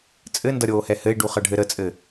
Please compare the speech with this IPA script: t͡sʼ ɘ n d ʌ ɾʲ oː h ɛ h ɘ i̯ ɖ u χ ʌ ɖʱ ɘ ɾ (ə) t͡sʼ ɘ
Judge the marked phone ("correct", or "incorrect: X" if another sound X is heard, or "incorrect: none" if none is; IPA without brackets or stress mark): correct